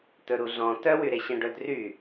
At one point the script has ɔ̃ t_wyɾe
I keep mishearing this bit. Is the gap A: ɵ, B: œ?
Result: B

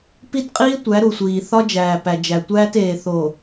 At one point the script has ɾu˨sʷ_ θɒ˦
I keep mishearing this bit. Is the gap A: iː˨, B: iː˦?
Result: A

